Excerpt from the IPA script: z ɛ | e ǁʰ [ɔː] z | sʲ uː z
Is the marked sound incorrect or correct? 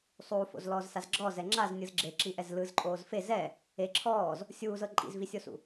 correct